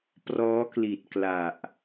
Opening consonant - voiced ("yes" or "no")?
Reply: no